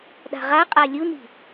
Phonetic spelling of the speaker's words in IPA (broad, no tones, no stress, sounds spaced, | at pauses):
ɗ a̤ ʁ a qʼ a lʲ u n i̤